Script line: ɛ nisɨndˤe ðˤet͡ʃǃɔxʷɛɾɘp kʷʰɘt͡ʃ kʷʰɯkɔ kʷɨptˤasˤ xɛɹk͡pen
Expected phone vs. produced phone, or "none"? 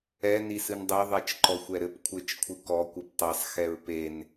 k͡p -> p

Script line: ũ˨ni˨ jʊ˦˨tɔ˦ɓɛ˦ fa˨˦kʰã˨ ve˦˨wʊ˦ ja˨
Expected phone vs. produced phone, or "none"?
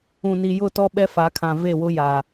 none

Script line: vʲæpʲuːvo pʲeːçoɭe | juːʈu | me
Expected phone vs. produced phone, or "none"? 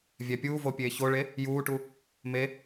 none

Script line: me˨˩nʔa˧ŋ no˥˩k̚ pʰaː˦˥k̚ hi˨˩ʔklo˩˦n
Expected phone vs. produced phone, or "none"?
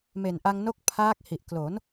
none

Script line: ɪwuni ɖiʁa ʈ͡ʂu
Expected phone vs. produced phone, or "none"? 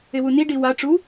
ʁ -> w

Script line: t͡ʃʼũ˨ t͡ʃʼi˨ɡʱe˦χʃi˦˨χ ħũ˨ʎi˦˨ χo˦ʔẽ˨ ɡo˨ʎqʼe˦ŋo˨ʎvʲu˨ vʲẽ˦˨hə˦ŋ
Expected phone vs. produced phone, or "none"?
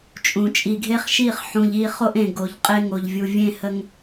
none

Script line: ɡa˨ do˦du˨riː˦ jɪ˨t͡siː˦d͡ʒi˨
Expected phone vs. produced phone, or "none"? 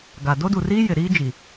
t͡s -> ɾ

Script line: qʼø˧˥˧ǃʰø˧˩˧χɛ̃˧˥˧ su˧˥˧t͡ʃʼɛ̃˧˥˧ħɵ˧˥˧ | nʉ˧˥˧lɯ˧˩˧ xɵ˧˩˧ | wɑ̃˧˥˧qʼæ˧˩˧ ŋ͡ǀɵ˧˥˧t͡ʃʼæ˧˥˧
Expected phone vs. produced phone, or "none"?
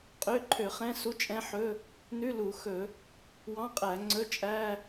ɯ˧˩˧ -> u˧˩˧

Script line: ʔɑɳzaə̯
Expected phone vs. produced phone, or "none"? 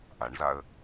ɑ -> a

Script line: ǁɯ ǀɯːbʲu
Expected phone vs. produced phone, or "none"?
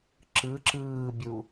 ǀ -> ǁ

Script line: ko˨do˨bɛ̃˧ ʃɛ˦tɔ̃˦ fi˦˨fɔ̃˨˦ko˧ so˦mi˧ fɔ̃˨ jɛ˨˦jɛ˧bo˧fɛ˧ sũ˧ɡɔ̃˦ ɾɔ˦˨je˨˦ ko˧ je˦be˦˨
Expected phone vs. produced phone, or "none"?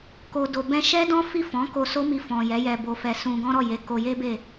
t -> d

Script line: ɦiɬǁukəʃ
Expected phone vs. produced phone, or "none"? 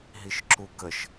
ɬ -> ʃ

